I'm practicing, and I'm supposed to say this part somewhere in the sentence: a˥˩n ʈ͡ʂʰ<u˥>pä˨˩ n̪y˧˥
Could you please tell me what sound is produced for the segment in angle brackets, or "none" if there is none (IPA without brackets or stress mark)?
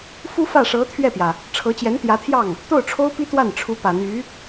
u˧˥